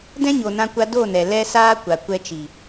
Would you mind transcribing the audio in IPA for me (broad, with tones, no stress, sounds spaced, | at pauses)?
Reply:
d ɛ̃˦ ɲ o˨ n ã˧ kʷ a˧ d o˦˨ n ɛ˨ l ɛ˧ s aː˧ kʷ a˨ kʷ ɛ˧ t͡ʃ i˨